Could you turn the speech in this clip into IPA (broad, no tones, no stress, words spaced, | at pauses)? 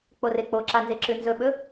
k͡porek͡poǁa nzeǁʉnzɵɓɵ